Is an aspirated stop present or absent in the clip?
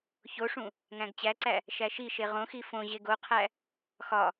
present